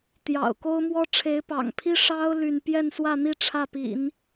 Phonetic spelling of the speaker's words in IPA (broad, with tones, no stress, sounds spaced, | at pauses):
t̪ j ɑ̰˨˩ ʊ̯ k o˥ ʊ̯ m w ɔ˥ ʈ͡ʂʰ e˧˥ ɪ̯ p ɑ̰˨˩ ŋ pʰ i˥ ʂ ɑ˥ ʊ̯ l y˥˧ n p j ɛ˥˧ n s w ä˥˧ n̪ i˥˧ ʈ͡ʂʰ ä˥˩ p ḭ˨˩˦ n